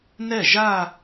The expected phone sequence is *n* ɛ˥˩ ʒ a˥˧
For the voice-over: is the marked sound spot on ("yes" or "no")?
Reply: yes